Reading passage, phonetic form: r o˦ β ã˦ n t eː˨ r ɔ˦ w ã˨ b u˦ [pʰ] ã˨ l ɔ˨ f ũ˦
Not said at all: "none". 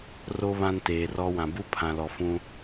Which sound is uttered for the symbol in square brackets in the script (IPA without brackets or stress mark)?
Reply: pʰ